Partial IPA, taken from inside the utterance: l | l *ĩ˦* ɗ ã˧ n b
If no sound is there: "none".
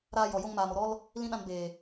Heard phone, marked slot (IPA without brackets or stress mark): ĩ˦